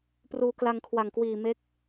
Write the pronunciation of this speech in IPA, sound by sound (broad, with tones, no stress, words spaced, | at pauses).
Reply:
pruː˧kla˧ŋkʰwa˨˩ŋkwiː˨˩ me˦˥k̚